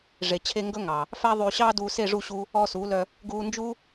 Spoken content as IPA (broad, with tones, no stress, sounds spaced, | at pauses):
ʐ e˨ t͡ɕʰ e˧ ŋ ɡ ɵ˦ ŋ ɑ˨ | f æ˦ ðˤ yː˧ ɕ ɑː˦ d uː˧ s e˦˨ ʐ u˦˨ ɕ u˦ | ɔː˧ s uː˨˦ l œ˧ | ɡ uː˧ n d͡ʒ u˦